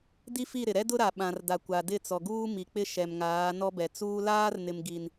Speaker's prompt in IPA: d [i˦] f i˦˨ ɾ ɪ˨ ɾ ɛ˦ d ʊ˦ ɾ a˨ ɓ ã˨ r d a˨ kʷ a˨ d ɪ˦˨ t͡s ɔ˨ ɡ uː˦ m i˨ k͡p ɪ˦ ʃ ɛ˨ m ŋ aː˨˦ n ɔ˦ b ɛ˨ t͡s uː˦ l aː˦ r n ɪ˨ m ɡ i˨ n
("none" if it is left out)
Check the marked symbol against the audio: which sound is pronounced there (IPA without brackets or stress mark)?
i˦